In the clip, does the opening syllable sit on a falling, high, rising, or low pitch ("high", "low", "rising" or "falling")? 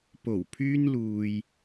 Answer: low